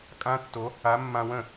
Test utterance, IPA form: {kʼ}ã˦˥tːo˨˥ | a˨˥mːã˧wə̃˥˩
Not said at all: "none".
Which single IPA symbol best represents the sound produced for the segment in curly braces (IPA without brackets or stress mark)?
kʼ